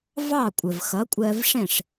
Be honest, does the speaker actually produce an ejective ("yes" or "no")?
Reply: yes